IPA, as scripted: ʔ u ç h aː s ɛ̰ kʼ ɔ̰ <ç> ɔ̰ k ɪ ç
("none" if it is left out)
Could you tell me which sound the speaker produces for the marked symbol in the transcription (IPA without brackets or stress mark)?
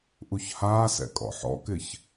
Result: ħ